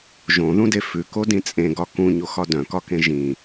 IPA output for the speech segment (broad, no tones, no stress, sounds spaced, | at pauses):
ʒ õ ð ũ d e f ʉ k o d ĩ t͡sʼ ẽ ɡ ɒ k ũ ɲ o x ɒ d œ̃ k ɒ k ẽ ʒ ĩ